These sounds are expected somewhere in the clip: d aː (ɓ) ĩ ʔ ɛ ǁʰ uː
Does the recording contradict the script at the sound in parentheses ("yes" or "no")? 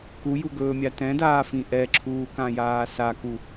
yes